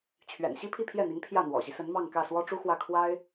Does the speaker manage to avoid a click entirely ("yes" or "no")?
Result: yes